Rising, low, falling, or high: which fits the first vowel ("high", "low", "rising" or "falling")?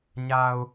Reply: low